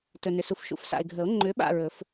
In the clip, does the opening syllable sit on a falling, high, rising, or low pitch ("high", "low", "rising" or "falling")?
low